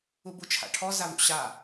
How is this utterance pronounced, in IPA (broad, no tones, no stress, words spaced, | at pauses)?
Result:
ubut͡ʃʰa̰ʈʰɔ zavṵɕa